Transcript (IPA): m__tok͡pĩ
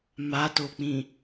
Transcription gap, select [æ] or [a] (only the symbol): a